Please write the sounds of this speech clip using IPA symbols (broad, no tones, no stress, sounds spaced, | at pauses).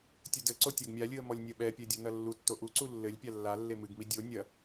tʲ ɘ d ɘ ǀ o tʲ a ɡ mʲ a lʲ ɨ ə̯ m ɔ lʲ nʲ ɐ ɓ ɛ pʲ ɛ dʲ o n ɐ lː u tː o ʔ u ǀ u lː ɘ lʲ pʲ a lː a lː e m ɨ ɡ m i dʲ o nʲ ɐ